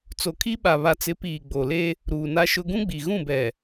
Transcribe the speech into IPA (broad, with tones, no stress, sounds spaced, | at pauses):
t͡s o˨ kʰ i˦ ɓ a˨ β a˨ t͡s ɪ˨˦ p iː˨ ɡ͡b o˨ l e˦ | ɾ uː˨ n a˦ ʃ ʊ˦ ɡ ũ˦ ɡ͡b i˨ ɣ ũ˦˨ b ɛ˨